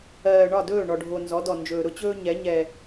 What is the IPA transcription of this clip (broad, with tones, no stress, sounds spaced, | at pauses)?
ɜː˨ ɳ ɒ˦˨ d ɵː˦˨ ɳ ɔ˨ ɖʱ o˨ n z ɔ˨˦ d ɔ˨ n d͡ʒ ɵː˨ ɾ ʊ˦ t͡ɕ ɵː˦ ɲ ɛ˨˦ ɲ ɛ˦